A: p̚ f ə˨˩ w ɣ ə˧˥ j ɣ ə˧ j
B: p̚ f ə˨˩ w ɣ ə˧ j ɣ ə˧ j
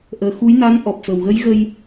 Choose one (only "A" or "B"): A